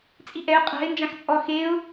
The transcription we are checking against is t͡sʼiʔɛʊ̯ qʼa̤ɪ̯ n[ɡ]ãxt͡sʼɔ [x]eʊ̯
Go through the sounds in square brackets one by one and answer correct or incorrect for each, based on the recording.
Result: incorrect: d͡ʒ, correct

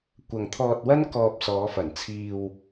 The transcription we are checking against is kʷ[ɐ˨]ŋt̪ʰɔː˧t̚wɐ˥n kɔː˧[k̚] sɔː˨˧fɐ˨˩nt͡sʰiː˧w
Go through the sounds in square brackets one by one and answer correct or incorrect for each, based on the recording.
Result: correct, incorrect: p̚

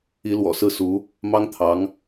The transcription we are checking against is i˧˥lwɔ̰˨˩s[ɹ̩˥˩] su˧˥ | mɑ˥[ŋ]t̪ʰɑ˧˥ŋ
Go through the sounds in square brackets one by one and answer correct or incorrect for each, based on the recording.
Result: correct, correct

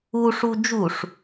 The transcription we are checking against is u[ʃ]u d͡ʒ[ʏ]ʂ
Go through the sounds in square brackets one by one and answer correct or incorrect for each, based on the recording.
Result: incorrect: ʂ, incorrect: u

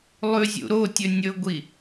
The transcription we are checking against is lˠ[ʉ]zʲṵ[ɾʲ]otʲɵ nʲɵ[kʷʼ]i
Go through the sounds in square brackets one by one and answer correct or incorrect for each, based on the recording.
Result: correct, incorrect: ɾ, incorrect: ɡʷ

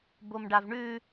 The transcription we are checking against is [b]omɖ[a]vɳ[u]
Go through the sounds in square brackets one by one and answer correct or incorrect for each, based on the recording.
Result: correct, correct, incorrect: ʉ

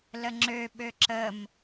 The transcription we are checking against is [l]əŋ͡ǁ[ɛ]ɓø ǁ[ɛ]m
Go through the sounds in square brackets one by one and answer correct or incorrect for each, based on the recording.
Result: correct, incorrect: ø, incorrect: ə

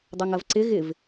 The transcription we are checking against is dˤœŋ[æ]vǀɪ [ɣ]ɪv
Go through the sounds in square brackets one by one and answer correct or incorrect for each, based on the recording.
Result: incorrect: ɐ, correct

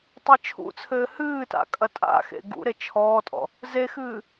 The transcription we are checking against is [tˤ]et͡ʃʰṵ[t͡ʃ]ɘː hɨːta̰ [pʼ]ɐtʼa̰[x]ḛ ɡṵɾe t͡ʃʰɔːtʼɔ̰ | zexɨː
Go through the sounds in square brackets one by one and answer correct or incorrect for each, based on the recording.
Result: correct, incorrect: t͡sʰ, incorrect: kʼ, correct

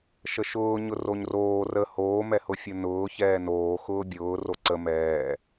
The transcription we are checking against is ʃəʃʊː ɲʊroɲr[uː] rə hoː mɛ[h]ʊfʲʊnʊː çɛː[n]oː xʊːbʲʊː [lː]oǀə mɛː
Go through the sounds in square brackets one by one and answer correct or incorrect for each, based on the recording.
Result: incorrect: oː, correct, correct, incorrect: r

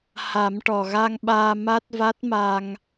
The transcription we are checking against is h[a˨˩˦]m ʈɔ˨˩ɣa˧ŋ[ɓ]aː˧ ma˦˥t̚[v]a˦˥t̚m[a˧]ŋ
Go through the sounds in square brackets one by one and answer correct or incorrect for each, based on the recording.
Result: correct, correct, correct, correct

